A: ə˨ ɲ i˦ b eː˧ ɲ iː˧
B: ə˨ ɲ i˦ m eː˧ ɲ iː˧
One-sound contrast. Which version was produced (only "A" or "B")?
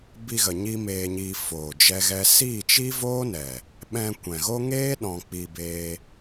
B